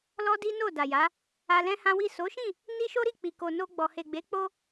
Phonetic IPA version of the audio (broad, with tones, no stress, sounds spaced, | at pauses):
l ɔ˦ d i˦ n o˦˨ d a˨ j a˨˦ | a˧ l ɛ̃˦ h ã˦ w i˦˨ s o˨˦ ʃ ĩ˦˨ | n i˦ ʃ o˦ ɾ i˦˨ k͡p i˨ k o˨ n o˧ ɡ͡b ɔ˨ h e˨ ɡ͡b e˨˦ k͡p o˧